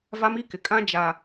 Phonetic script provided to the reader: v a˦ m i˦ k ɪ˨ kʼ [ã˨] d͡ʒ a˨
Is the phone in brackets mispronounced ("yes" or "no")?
yes